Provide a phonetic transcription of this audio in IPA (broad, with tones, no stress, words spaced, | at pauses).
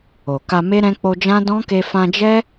o˨ka˧me˦ɾɛ̃˦ k͡po˧d͡ʒã˦ dɔ̃˦ke˧ fã˧d͡ʒɛ˦